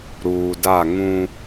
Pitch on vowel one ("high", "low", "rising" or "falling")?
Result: low